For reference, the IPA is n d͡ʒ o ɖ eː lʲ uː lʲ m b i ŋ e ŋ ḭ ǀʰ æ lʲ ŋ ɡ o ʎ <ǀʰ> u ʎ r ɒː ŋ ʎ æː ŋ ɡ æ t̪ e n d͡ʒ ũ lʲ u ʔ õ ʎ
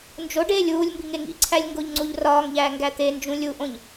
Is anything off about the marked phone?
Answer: yes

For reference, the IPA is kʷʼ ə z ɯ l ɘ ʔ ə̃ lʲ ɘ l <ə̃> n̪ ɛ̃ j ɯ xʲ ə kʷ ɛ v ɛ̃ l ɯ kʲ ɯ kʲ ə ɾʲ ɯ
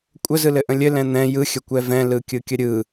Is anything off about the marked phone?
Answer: yes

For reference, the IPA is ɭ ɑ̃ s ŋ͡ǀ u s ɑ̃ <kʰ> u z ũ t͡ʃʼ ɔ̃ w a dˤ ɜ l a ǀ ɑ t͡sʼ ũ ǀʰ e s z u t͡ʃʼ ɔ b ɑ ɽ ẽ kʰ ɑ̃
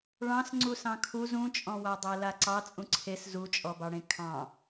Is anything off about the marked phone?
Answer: no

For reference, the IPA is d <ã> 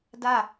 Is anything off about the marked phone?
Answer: yes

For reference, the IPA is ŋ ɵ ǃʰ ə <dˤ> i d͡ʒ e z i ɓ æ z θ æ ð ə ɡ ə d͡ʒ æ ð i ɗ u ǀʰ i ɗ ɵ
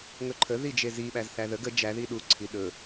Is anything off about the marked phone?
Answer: yes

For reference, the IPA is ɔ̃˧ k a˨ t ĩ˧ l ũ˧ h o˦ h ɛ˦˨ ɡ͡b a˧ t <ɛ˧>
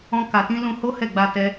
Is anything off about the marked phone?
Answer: no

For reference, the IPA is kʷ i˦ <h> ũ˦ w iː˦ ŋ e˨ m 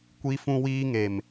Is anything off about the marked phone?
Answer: yes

